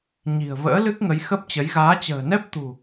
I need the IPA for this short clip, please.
ɲ i̤˨˩ ə̯ v ə̰ː˧˥ l ɨ˦˥ k̚ ŋ ə˨˦ j x ə˦˥ p̚ t͡ɕ ə˨˦ j ɣ aː˨˦ t͡ɕ ə̤ː˨˩ n ɛ˦˥ p̚ t̪ ṳ˨˩

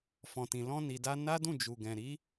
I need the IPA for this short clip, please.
f ɔ̃˨ t ĩ˨ l ɔ̃˧ n i˨ d a˧ n a˦ d ũ˦˨ d͡ʒ u˨ ɡ ɛ̃˨ ɾ i˨˦

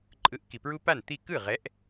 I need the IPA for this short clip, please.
ǃʼ ɯ˨˥ ʔ k i˩ p ɹ u˦ p a˥˩ n t̪ i˥˩ k ɯ˥˩ ʁ ɛ˨˥ ʔ

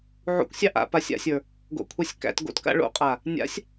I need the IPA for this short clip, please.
ʕ ṵ kʷ sʲ ɑ ʔ a̰ p a sʲ a̰ sʲ ə˞ | ɡ o̰ kʷʰ ɑ sʲ k æ̰ t ɡ o̰ t k a̰ ɭ o̰ qʼ a | nʲ a̰ sʲ

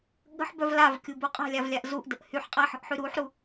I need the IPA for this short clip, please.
ɠ ə̤ ħ b œ v l a v kʲ u b u qʼ a̤ lʲ a v lʲ a ʔ z u ʔ d ə ʔ h y ħ qʼ a ħ ə̤ ʔ ħ y ɾ u ħ ɾ u

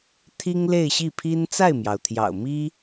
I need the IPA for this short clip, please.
t̪ʰ i˥ ŋ l e˥˧ ɪ̯ ɕ i˥˩ pʰ i˥ n t͡s a˥˩ ɪ̯ m j ɑ˩ ʊ̯ t̪ʰ j ɑ̰˨˩ ʊ̯ m i˥

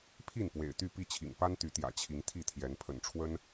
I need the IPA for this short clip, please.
pʰ i˥˨ n p w ḛ˨˩ ɪ̯ t̪ y˥˨ p i˥˨ t͡ɕʰ ḭ˨˩ ŋ p a˦ n t̪ y˨˦ t̪ j ä̰˨˩ t͡ɕʰ i˨˦ ŋ t̪ʰ i˥˨ t̪ʰ j ɛ˨˦ n pʰ ə̰˨˩ n ʈ͡ʂʰ w ə˦ n

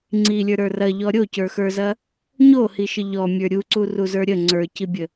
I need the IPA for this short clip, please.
ŋ͡ǀ i lʲ ə˞ ɾ ə˞ r ɐ ʎ ɔ ɾʲ o c ə˞ x ə˞ z ɐ | ɲ o h i ʃ ə ʎ ɔ mʲ ə˞ ɾʲ u ǀ u r u z ə˞ ɾʲ ə ŋ͡ǀ ə˞ c i bʲ ə

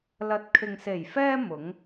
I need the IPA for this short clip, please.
l ɐ˨ t̚ kʰ ɪ˨ ŋ s e˨˩ j f ɛː˧ m ʊ˨˥ ŋ

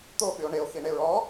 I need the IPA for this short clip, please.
t̪ o ɓ y o̯ ɳ e o̯ x i ɳ e ɹ ɔ

